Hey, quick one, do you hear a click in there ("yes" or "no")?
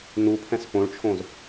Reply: no